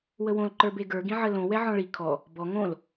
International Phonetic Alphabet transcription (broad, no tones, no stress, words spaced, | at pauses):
wəwõl ǃə˞beɡə˞ ɡĩʕəlõ wɛʕɔ̃ɭi kʰɔ | bɔ ŋõl